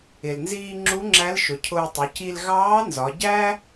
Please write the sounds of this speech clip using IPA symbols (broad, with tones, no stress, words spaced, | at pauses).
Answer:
ɪ˩lnziː˧ ŋ͡ǁu˧˥ŋ͡ǁæ˧˥lʃʊ˩˧cʰʊː˧ tˤʊ˩˧ci˧l ɣɑː˧˥nzɒ˩˧ɟæ˥